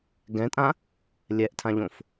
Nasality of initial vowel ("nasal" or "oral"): nasal